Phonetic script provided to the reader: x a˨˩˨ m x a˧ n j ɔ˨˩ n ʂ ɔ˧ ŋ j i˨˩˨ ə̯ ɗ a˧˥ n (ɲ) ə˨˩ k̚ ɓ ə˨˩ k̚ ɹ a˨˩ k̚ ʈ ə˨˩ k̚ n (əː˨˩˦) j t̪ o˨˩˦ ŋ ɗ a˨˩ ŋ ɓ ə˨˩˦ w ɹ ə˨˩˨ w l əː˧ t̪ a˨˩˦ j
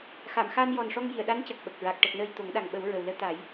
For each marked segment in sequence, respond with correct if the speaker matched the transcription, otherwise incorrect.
incorrect, incorrect

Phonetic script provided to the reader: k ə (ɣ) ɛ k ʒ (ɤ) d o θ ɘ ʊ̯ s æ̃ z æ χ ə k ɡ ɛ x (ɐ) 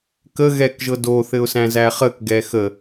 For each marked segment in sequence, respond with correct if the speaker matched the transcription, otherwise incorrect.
correct, correct, incorrect

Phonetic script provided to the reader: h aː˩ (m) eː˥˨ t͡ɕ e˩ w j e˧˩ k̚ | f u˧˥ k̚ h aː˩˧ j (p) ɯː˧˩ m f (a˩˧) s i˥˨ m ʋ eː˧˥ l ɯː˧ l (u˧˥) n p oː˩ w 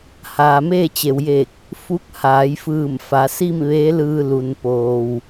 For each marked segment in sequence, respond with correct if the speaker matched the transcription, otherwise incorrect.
correct, incorrect, correct, incorrect

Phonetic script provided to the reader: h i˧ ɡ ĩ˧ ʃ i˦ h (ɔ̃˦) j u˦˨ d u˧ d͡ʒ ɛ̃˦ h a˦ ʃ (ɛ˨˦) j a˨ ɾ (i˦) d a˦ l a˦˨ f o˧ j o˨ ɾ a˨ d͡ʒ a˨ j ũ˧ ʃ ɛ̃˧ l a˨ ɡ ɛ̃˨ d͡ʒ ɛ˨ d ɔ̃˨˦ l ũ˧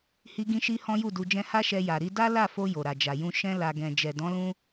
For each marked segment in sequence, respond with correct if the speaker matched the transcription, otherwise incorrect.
correct, incorrect, incorrect

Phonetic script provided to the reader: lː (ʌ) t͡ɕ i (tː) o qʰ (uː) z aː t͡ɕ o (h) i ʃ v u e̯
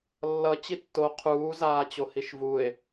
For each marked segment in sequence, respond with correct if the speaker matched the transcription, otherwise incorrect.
correct, correct, correct, correct

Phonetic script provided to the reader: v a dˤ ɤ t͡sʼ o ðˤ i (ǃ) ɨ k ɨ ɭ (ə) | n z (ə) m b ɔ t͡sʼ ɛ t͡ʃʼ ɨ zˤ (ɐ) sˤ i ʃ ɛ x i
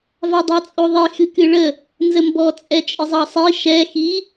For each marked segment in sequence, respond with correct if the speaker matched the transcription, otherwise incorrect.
incorrect, correct, correct, incorrect

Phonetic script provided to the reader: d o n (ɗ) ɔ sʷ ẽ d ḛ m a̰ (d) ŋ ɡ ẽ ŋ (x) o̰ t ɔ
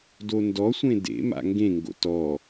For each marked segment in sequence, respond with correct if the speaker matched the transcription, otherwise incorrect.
incorrect, incorrect, incorrect

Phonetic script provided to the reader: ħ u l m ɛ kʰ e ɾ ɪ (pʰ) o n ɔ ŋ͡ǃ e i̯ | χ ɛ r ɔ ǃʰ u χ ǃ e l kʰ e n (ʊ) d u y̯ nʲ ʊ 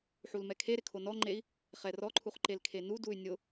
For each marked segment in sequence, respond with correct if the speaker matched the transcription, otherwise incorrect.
incorrect, incorrect

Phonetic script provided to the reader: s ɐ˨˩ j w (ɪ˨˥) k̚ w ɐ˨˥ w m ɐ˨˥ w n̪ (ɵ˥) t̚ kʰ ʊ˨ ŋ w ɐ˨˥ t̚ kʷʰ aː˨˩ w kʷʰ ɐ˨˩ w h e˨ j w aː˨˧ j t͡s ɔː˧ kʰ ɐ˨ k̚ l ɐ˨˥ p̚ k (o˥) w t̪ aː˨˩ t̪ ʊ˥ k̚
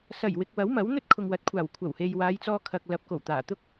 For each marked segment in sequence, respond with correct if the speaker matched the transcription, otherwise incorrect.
incorrect, correct, incorrect

